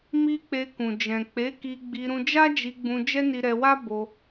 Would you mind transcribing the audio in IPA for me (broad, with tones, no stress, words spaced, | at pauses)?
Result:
mi˧ k͡pe˧kũ˨ d͡ʒɛ̃˨k͡pe˨˦ki˧ɡ͡bi˧ ɾũ˧d͡ʒa˦d͡ʒi˧ɡ͡bũ˧ d͡ʒɛ˦ni˧ ɾɛ˧wa˦ bo˧